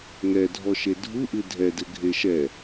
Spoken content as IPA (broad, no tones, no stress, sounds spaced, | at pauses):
ŋ ɛ dʱ ɔ ʃ e dʱ u ʔ ɨ dʱ ɛ d ɘ ɡʱ e ʃ ɛ